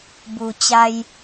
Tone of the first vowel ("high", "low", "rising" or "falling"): low